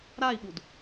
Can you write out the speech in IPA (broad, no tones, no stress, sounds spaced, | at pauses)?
ɾ a i̯ ɓ u d